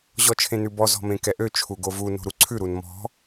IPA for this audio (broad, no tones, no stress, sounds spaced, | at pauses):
ʑ ɔ t͡ʃʰ ẽ n ʉ b ɔ z ɔ̤ m ẽ k ɛ ʔ ø t͡ʃʰ u ɡ o v u n o̤ ɾ u ǀʰ ʉ ɾ u n m ɔ̤